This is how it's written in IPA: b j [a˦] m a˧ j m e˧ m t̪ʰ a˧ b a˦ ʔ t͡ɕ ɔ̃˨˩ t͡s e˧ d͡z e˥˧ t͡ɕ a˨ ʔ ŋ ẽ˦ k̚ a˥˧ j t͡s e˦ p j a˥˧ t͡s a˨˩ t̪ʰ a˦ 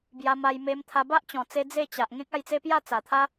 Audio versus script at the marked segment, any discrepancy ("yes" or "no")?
yes